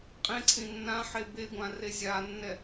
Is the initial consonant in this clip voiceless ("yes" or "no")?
yes